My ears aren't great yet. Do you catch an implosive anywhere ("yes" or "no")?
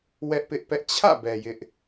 no